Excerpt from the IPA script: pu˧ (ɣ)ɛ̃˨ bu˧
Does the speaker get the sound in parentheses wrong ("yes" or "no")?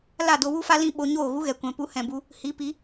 yes